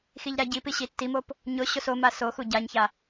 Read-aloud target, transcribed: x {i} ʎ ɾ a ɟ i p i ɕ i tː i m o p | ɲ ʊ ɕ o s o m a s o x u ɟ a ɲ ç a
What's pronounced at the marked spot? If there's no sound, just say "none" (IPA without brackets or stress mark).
i